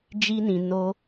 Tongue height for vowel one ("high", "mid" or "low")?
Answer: high